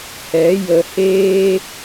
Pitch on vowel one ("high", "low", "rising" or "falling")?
rising